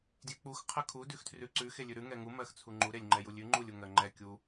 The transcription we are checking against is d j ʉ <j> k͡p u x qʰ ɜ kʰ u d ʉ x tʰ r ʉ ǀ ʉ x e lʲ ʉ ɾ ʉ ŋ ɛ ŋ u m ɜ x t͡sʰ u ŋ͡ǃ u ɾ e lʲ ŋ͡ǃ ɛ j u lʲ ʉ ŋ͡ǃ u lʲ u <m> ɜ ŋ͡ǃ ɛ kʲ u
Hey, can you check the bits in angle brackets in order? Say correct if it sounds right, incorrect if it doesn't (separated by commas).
incorrect, incorrect